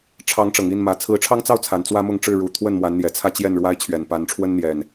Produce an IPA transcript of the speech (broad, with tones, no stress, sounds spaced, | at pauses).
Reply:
ʈ͡ʂʰ ɑ˨˦ ŋ ʈ͡ʂ ɤ˨˩ ŋ i˥˨ n m ä˨˦ t͡sʰ ɹ̩˨˦ ʈ͡ʂʰ ɑ˦ ŋ t͡s ɑ˥˨ ʊ̯ t͡sʰ a˨˩ n t͡s w ä˦ m ʊ˥˨ ŋ ʈ͡ʂ ɻ̩˥˨ ɻ u˨˦ t̪ʰ w ə˥˨ n m w a˨˦ n n̪ j ɛ˨˩ t͡sʰ ä˥˨ t͡ɕ j ɛ˥˨ n ɻ w a˦ ɪ̯ t͡ɕʰ ɥ ɛ˨˩ n p a˨˦ n ʈ͡ʂʰ w ə˦ n n̪ j ɛ˨˩ n